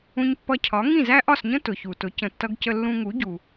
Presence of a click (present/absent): absent